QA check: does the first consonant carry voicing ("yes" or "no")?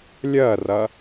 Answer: yes